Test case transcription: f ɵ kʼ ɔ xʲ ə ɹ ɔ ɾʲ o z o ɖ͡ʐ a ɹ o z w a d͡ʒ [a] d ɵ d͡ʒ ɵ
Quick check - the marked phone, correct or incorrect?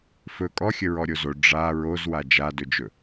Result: correct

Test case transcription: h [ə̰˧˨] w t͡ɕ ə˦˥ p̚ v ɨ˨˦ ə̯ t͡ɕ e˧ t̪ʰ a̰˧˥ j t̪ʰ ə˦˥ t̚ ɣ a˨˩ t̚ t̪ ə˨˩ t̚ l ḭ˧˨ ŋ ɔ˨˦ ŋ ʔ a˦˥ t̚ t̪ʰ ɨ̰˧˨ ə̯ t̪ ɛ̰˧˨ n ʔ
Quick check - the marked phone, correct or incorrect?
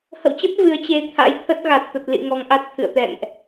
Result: correct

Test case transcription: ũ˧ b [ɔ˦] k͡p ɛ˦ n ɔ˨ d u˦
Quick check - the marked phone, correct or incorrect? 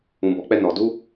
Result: incorrect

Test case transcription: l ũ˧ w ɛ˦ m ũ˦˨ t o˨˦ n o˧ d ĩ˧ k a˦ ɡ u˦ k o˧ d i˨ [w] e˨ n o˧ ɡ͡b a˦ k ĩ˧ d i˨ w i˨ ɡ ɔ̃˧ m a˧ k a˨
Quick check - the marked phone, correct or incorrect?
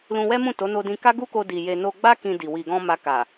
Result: incorrect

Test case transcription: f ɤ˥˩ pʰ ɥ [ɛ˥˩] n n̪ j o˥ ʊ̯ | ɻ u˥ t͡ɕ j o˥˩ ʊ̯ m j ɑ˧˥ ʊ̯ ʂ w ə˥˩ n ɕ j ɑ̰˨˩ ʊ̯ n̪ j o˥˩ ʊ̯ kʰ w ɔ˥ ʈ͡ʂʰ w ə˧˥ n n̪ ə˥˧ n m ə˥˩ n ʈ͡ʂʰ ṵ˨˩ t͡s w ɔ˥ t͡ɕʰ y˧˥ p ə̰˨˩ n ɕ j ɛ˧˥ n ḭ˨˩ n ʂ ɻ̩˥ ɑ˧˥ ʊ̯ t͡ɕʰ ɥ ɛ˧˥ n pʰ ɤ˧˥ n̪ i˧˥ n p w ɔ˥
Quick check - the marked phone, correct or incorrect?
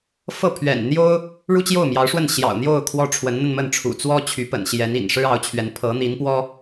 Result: incorrect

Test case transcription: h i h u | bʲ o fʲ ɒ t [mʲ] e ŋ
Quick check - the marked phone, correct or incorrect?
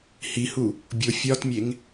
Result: correct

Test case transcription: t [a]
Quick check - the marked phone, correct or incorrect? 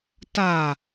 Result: correct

